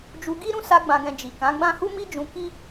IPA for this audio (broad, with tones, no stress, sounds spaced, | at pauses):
d͡ʒ u˧ ɡ i˦ ɾ ũ˦ s a˧ ɡ͡b ã˨ ɡ ɛ̃˨ d͡ʒ i˨ k ã˨˦ ɡ͡b ã˦ h u˦ m i˦ d͡ʒ ũ˧ k i˦